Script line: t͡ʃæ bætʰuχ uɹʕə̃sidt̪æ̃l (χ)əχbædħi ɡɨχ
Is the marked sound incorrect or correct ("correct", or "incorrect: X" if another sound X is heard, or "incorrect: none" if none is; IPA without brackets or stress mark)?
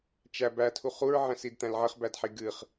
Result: incorrect: ʕ